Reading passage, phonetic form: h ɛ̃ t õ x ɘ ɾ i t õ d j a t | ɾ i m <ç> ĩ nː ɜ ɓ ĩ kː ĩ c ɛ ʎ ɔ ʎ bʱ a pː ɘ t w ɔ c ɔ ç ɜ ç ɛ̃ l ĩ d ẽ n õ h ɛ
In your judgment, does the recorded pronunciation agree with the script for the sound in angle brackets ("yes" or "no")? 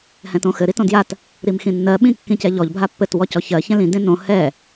no